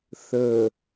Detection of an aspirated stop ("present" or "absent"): absent